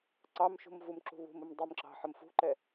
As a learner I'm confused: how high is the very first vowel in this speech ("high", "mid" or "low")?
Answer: low